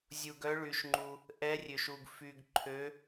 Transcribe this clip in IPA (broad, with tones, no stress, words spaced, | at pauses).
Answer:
zʲu˧ɡœ˦˥ɭy˧ʃŋ͡ǃu˧ | ʔɛ˦˥rʲø˧ʃu˧ɡ fy˧ɡ ǃʰø˦˥